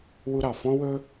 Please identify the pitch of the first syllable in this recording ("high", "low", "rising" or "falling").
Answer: high